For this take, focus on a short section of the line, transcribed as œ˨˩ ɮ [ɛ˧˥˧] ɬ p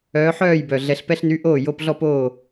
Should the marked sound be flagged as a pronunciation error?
yes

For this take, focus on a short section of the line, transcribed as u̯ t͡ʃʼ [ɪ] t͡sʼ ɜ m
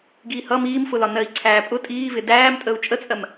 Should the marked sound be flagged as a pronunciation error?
yes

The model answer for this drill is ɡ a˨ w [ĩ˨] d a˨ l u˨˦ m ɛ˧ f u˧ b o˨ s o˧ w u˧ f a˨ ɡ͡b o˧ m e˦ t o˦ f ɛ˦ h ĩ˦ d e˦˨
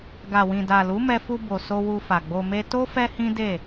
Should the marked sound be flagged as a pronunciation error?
no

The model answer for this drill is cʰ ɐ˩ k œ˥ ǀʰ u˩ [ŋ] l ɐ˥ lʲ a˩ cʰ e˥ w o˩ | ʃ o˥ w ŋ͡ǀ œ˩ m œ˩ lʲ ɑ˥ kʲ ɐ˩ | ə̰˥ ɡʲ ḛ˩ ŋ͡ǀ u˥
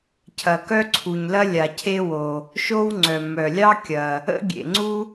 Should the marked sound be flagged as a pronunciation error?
yes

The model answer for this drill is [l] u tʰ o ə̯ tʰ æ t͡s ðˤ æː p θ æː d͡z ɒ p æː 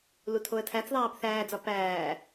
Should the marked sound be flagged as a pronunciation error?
no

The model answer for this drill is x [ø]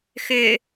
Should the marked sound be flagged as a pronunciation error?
no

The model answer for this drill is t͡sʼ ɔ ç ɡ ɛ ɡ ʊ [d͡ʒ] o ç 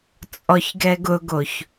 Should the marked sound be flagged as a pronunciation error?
yes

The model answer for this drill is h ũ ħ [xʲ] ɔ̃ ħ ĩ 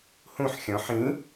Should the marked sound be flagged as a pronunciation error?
no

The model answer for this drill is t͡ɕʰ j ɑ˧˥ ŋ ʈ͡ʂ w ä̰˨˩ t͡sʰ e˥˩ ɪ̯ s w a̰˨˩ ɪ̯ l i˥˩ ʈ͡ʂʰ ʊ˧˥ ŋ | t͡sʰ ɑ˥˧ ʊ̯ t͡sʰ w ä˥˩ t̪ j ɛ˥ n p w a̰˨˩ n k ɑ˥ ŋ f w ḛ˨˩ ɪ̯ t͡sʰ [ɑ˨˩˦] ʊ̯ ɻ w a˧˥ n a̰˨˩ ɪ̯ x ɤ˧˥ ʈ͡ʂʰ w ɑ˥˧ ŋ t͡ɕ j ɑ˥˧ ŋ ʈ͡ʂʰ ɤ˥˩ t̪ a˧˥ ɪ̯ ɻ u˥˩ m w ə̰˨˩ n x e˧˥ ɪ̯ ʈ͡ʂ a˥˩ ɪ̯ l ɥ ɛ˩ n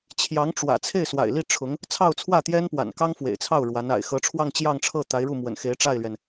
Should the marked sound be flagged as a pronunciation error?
yes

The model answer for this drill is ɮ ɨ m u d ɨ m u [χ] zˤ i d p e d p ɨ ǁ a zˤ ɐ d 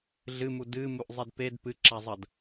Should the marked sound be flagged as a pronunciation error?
yes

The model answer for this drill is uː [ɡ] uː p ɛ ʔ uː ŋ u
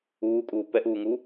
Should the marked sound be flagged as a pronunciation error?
yes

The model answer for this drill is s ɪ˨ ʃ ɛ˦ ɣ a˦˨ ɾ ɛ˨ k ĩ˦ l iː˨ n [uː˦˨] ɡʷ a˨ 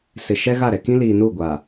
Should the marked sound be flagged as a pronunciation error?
no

